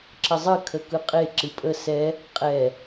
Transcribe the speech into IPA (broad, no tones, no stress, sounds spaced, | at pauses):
ǁ ə zˤ ɨ kʰ ə k ɯ qʼ e ǁ ɨ pʼ ə s ɛ | qʼ ɛ